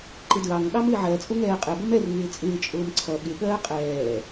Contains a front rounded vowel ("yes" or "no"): no